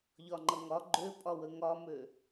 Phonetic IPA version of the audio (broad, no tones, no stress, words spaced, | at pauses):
ʎɒŋ͡ǃʌŋɒ ɡ͡ǃøpʼɒwə ŋɒmø